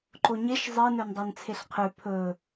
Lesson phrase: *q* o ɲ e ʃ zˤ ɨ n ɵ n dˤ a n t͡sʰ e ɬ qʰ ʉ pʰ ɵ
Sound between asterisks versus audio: incorrect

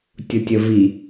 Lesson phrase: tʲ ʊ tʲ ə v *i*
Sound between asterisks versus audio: correct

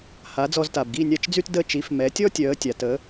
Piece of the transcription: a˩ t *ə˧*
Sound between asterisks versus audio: incorrect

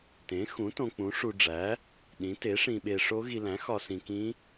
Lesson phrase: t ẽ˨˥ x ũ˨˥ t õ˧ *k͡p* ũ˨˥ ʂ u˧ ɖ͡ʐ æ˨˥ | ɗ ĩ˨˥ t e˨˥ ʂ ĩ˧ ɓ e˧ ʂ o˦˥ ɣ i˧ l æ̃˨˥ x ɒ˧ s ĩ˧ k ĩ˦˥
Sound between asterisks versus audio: correct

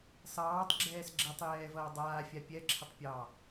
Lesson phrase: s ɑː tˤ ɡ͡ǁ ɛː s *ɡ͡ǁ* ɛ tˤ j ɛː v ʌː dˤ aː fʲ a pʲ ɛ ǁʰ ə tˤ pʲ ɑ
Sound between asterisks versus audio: correct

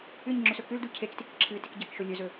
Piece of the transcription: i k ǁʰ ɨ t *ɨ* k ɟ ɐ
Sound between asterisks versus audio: incorrect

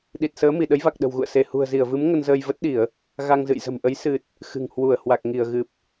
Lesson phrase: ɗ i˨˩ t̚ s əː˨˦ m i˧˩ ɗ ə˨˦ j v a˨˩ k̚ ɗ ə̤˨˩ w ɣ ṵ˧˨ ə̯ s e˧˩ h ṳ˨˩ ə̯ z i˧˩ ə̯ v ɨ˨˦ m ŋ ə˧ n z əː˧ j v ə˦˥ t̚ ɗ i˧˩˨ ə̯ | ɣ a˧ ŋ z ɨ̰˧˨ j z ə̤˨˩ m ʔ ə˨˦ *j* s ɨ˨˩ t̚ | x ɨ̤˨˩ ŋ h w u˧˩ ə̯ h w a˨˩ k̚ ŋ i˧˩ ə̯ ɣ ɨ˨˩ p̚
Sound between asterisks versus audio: correct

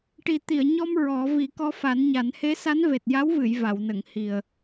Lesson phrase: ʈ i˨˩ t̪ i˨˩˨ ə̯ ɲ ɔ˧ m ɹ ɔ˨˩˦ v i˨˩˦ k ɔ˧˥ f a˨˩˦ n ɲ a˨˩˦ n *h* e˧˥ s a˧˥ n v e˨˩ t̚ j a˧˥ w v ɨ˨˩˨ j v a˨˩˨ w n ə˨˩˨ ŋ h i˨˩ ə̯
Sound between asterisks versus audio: correct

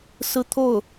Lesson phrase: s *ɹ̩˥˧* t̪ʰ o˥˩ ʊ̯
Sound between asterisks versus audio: correct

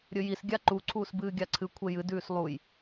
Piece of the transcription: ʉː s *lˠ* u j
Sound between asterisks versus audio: correct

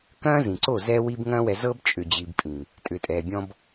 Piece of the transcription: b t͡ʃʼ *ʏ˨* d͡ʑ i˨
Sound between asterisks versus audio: correct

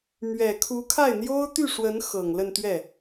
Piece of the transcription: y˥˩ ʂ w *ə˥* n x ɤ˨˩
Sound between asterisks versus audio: incorrect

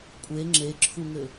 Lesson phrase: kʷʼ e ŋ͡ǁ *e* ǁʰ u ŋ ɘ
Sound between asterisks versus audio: correct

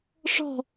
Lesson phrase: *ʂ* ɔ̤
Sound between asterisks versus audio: correct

